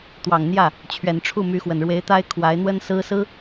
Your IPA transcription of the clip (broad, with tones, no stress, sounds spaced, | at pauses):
t̪ w ɑ˨˩ ŋ n̪ j ä˥˩ | t͡ɕʰ ɥ ɛ˨˩ n ʈ͡ʂʰ u˥˩ m y˧˥ x w ə˨˩ n ɻ w e˧˥ ɪ̯ t̪ a˥ ɪ̯ kʰ w a˧˥ ɪ̯ n̪ w ə˥ n s ɹ̩˥ s ɹ̩˥